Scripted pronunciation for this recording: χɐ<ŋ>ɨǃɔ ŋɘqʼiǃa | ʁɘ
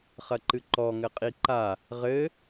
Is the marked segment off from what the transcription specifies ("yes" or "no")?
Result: yes